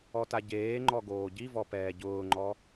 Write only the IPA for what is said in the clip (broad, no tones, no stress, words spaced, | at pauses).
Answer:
ɔtaɟeːŋ͡ǃɔ ɡoːɟivɔ pɛːɟʊːŋ͡ǃɔ